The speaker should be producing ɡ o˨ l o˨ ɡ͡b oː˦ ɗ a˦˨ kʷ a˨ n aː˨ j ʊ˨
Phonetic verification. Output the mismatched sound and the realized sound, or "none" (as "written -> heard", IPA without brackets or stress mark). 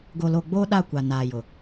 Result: none